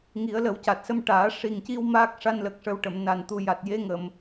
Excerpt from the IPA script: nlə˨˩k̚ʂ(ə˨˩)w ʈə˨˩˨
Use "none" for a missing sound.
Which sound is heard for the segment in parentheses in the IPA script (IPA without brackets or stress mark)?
ə˨˩